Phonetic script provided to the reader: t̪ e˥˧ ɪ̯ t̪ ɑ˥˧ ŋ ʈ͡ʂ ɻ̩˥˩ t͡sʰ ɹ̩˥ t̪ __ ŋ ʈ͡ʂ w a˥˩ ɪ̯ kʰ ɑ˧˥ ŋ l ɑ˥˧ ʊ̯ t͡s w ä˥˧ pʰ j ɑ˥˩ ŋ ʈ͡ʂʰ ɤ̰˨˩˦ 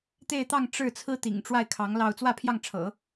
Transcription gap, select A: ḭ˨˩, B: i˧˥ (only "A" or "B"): A